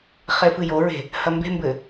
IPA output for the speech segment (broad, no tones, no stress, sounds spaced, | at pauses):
χ e f ɨ j o ɹ e̤ | h ɐ m b e̤ m b ɘ